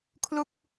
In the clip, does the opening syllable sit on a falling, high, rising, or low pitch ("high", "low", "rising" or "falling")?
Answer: falling